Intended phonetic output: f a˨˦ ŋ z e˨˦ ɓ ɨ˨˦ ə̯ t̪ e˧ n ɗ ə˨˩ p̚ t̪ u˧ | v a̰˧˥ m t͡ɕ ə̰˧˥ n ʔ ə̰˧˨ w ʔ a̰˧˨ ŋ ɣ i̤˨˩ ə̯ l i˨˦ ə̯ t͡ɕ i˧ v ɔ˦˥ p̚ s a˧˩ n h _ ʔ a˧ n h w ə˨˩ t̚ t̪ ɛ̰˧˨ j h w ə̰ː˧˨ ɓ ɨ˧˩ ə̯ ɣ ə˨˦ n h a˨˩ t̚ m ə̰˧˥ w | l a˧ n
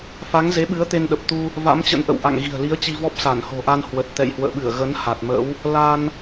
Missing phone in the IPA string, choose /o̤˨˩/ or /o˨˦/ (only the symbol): o̤˨˩